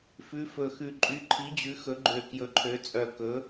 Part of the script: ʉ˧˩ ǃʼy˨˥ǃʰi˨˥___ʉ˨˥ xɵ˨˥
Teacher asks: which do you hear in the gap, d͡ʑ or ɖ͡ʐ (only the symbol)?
d͡ʑ